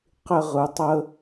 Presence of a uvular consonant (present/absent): present